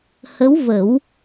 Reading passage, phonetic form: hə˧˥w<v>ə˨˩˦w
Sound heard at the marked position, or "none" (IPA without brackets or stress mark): v